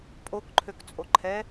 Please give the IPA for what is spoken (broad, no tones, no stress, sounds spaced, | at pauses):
pʼ o k ǃʰ ø k t͡sʼ o ǃʰ ɛ